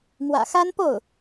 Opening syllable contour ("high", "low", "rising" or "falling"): low